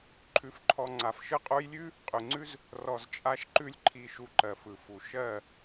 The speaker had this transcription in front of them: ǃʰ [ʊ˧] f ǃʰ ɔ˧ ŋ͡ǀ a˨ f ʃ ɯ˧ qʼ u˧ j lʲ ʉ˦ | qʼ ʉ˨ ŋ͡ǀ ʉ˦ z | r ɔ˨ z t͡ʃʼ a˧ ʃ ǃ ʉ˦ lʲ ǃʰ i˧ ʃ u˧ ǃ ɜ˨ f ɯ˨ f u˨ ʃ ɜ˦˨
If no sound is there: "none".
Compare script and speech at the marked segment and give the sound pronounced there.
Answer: ʉ˧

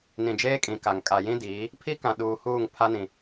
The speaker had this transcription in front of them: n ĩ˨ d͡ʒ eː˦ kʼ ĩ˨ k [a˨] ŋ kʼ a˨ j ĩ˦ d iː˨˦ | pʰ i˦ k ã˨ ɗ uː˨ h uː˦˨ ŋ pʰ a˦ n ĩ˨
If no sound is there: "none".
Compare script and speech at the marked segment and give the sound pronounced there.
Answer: a˨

